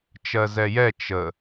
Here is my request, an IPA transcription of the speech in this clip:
t͡ʃ ɜ z ɛ j ɛ t͡ʃ ə

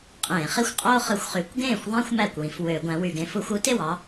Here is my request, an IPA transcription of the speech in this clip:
qʼ ẽː˧˩˧ χ i˥˩ xʷ qʼ oː˥ χ ɯ˨˥ xʷ χ y˨˥ kʷ ɡ ẽː˥˩ xʷ ðˤ æ̃˥ xʷ m æ˥˩ kʷ w ĩ˧˩˧ f w ø˧˩˧ ɡʷ æ̃˨˥ w y˧˩˧ ɡ ẽ˨˥ f u˧˩˧ xʷ u˨˥ t e˥˩ w ɑ˥

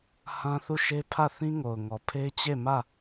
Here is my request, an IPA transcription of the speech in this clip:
h ã˦ θ u˦˨ ʃ e˦ pʰ ä˦˨ θ ĩ˦ ŋ o˨ ʊ̯ ŋ ɔ˨ pʰ e˦ ɪ̯ t͡ɕ e˦˨ m ä˦˨

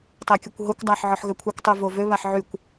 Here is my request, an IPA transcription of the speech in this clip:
tˤ ɛ kʲ o kʷ ɦ o kʷ dˤ a ħ ʕ ɔ ħ ɣ ø kʷʰ e kʷ tˤ y v o v ø β a ħ ʕ y kʷ

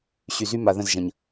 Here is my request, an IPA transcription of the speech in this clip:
ɕ y˨ z y˦ m a˨ ð ə̃˦˨ z ʒ ɐ̃˨ ɲ

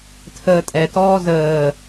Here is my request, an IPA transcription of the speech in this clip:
tʰ əː tʼ ɛ t ɔː z əː

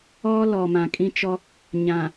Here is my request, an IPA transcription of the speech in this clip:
ɔ˦ l ɔ˨ m ã˨ kʼ ĩ˦ t͡ʃ ɔ˦ | ɲ ã˨

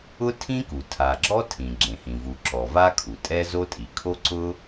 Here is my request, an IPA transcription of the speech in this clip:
ʊ˥ tʰ ĩ˥ k u˩ tʰ a˩ ɡ͡ǁ ɔ˥ tʰ ĩ˩ ɡ͡ǁ ẽ˩ h ĩ˩ v u˩ ǁ ɔ˩ v a˥ kʰ u˩ tʼ ɛ˥ z o˥ tʼ i˩ kʰ o˥ ǀ ʊ˥

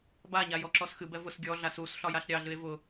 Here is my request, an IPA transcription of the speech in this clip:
b a ɲ a j ɔ ǁ ɔ s x ɨ b ɛ v ʊ s ɡʲ ɔ ɮ a s u s ɬ ɒ j a ɬ ɾʲ ɑ ɮ ɨ e̯ v ʊ

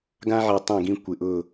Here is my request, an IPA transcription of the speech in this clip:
ɡ ã˦ ʕ ɛ˨ tˤ ɛ̃˦˨ ɡ ĩ˦ kʷ ɪ˨ ʔ ʊ˦˨

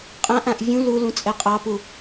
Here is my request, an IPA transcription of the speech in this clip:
qʼ ã ʔ ã ʔ vʲ ũ l u l ũ t͡sʼ ɛ qʼ ɑ p u

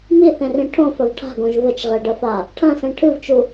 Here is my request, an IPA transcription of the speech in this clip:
m i θ ẽ r ĩ ʈʰ õ f ɐ v ʈʰ a̤ ɡ õ ʒ v ɘ t͡ʃ ʁ e ɖ ɐ f a | ʈʰ ɐ̃ s ẽ ʈʰ ɨ v t͡ʃ u

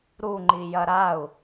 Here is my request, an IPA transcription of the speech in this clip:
ɾ u ŋ͡ǃ i j ɐ ɾ a u̯

